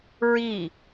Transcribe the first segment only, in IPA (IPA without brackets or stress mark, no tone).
ɹ